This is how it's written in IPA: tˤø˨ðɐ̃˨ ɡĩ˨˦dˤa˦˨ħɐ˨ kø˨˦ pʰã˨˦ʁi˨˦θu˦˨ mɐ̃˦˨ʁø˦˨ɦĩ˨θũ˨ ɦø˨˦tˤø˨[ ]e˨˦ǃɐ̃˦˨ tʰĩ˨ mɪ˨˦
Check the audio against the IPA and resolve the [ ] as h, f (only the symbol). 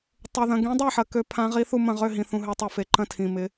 f